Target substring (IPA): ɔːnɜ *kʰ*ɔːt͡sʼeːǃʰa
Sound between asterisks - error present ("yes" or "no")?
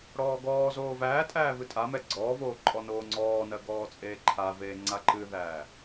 yes